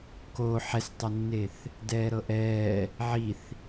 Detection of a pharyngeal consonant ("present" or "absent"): present